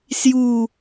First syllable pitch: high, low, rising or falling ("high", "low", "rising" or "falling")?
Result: falling